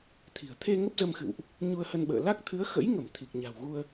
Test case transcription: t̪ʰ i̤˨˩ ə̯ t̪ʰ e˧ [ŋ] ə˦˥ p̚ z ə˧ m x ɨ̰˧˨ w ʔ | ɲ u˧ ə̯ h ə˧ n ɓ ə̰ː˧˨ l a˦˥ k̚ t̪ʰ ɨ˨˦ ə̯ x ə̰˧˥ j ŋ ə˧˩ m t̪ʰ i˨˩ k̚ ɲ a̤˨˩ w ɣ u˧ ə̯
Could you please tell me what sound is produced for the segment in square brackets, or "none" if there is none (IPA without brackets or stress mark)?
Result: ŋ